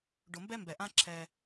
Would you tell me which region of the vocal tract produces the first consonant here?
retroflex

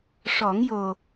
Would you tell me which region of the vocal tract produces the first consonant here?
retroflex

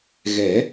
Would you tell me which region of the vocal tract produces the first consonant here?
velum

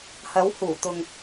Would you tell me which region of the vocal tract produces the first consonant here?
throat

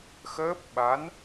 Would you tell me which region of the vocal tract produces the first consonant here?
velum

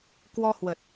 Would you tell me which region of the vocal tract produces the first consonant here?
velum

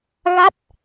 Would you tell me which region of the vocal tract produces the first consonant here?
velum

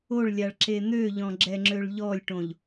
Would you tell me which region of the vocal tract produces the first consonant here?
retroflex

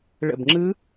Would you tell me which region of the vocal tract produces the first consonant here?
retroflex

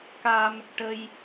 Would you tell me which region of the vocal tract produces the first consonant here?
velum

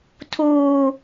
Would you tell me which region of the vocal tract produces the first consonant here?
tongue tip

